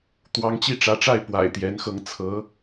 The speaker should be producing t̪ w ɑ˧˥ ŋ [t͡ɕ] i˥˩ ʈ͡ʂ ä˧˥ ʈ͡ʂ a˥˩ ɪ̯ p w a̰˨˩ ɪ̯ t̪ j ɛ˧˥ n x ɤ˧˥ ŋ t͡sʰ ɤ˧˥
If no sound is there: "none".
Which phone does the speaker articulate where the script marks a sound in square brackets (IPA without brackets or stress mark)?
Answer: t͡ɕ